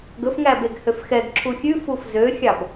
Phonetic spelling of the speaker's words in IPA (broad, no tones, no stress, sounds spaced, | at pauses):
ɡ ɵ f ŋ æ b e ɡ h ø f x ɛ ɡ ǁʰ u xʲ ʉ f u f z ø xʲ ɑ b